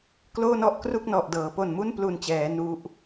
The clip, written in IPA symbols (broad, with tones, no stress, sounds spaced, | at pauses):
k l oː˥˩ n ɔ˥˩ ʔ k r u˥˩ k̚ n ɔ˨˩ ʔ d ɤː˩˦ p o˨˩ n m u˥˩ n p l u˨˩ n t͡ɕ ɛː˩˦ n u˦˥ ʔ